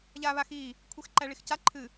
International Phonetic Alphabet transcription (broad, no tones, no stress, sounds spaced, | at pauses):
ʎ aː β a x iː | kʷʰ e x ǃ æ ɭ i x c a ǃʰ ɨ